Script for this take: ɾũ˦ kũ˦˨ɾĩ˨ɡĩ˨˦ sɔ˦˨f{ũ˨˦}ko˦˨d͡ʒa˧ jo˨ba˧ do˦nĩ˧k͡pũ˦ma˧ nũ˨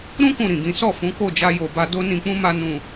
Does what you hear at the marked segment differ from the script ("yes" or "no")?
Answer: no